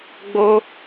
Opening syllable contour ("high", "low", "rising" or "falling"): high